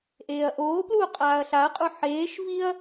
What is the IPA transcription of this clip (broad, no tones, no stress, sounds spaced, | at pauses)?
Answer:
ʔ eː ɐ̯ ʔ oː p l uː qʼ aː ɐ̯ ɬ a ɐ̯ qʼ u ħ eː ʃ v i ɐ̯